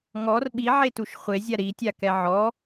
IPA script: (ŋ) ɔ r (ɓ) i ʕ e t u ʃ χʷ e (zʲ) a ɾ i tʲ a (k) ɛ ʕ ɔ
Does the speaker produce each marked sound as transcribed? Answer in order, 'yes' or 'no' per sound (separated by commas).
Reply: yes, yes, yes, yes